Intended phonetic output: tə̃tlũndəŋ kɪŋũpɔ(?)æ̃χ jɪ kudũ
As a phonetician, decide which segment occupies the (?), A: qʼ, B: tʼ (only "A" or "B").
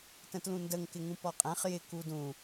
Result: A